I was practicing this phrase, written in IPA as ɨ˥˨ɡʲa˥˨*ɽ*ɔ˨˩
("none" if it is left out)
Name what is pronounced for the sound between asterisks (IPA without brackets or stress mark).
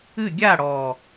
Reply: ɽ